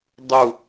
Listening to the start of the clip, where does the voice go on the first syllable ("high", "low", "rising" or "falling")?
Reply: falling